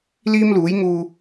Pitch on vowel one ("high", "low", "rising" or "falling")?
high